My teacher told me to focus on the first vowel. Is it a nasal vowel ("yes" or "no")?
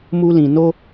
no